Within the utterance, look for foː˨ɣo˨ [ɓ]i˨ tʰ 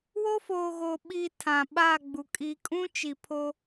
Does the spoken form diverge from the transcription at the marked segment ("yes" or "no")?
no